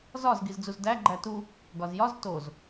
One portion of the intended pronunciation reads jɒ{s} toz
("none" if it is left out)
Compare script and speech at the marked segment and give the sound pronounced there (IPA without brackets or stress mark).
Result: z